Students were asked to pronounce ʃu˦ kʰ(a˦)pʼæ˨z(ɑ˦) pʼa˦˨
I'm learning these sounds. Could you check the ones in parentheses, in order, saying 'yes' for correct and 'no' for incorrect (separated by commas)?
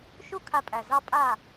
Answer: no, yes